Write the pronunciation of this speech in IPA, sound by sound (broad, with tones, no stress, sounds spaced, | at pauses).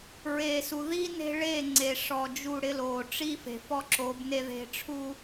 ɹ e˨ s u˨ ð i˦ n e̤˦ ɭ e˦˨ ŋ͡ǀ e˨ ʂ ɔ˨ d͡ʒ u˦˨ ɽ ɪ˦ l o˨ ʈ͡ʂ i˦ f e̤˨ f ɔ˦ ǁ o˨˦ b n e˦ ð e̤˦ ʈ͡ʂʰ u˦